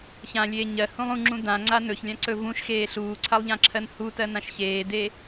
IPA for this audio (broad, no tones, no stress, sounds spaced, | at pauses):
ç ã lʲ eː ɲ ɜ h ũ lˠ ũ ŋ͡ǁ ũ d̪ ã ŋ͡ǀ a n ɵ ç lʲ ã ǀ ɵ v ũ ʃ x eː ɬ uː ǀʰ a lˠ ʎ ã ǁʰ ɜ n h u t ɜ n ã ʃ ç eː d̪ e